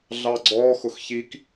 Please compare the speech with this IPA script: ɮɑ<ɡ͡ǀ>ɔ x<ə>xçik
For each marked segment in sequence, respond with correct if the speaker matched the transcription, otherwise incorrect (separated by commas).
correct, incorrect